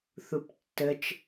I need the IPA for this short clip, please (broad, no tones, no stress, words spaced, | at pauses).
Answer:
θuptːət͡ʃ